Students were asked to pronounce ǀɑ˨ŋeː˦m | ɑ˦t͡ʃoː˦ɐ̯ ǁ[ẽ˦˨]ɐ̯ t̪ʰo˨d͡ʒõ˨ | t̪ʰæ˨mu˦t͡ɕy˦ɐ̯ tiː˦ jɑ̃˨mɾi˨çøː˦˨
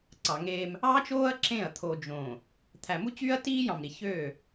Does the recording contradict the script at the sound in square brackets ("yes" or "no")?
no